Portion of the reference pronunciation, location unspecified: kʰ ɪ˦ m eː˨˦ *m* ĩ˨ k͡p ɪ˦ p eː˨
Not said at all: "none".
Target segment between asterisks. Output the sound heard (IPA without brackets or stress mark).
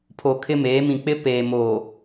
m